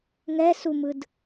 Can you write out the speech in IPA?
ŋ ɛ s u m ɯ d

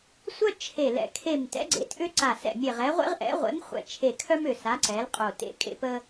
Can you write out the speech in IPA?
sʷ œ˥ t͡ʃʰ e˧˩ l ɛ̰˧˩ kʰ e˧˩ m t ɛ̰˨˥ ɡ͡ǀ ḛ˨˥ t ʔ ʏ˥ ǀ a˧˩ s ɛ̰˧˩ mʲ e˧˩ ʁ ɛ˨˥ ʁʷ ḛ˥ ʁ ʔ ɛ̰˨˥ ʁʷ ḛ˨˥ m χʷ ɛ̰˧˩ t͡ʃʰ e˧˩ kʰ œ˥ m ʏ˧˩ s a˨˥ ǀ ɛ˨˥ l qʼ o˧˩ t ḛ˥ kʼ ḛ˥ p ə˥

